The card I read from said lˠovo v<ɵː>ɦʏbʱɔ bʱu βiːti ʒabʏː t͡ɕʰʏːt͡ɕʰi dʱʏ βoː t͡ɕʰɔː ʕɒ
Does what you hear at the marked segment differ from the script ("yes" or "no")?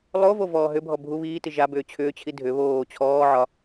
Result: yes